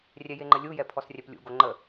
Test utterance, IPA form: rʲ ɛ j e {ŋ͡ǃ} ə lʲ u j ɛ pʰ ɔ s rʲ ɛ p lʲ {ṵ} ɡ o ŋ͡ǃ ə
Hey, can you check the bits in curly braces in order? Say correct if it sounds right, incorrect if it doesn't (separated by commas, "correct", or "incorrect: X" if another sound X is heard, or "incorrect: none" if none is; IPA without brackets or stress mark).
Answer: correct, correct